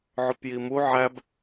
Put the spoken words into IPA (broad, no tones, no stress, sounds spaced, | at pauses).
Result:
ʕ ʊ p j i m u ʕ æ b